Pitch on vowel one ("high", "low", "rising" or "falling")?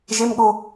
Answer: high